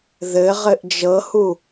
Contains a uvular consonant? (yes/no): yes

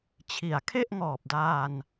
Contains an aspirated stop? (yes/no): yes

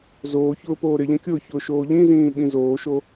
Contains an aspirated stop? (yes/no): no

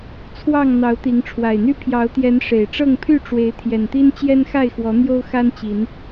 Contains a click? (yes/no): no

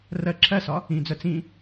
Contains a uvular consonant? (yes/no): no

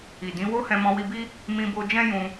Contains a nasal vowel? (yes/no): yes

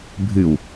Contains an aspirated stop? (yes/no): no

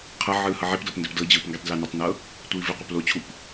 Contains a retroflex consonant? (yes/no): no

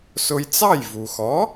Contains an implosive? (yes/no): no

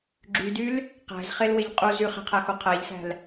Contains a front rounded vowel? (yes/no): yes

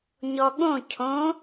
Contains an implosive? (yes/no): yes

